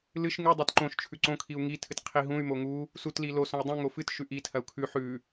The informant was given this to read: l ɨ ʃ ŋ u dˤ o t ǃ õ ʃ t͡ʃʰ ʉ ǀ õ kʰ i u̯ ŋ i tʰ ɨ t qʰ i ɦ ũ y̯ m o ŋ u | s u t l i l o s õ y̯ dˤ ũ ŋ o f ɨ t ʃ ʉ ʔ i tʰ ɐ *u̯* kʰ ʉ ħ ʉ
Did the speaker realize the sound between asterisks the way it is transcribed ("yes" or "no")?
yes